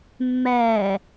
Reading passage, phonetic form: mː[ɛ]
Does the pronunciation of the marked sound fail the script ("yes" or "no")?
yes